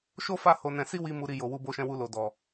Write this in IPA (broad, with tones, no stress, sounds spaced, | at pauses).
ʃ o˦ f a˦˨ h o˧ n ɛ̃˧ s i˦ w i˧ m u˨ ɾ i˨ j o˨ w u˧ b o˧ ʃ ɛ̃˧ w u˧ l o˨ d ɔ˨